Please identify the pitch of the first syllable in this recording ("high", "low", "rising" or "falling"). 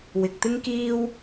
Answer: low